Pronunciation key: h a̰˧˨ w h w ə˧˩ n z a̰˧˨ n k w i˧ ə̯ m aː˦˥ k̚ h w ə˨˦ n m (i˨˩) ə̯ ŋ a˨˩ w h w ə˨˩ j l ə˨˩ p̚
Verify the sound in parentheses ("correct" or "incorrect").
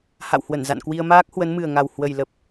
incorrect